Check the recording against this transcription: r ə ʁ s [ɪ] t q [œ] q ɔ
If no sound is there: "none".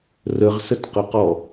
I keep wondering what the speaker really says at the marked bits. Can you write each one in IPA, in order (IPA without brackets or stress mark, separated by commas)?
ə, ə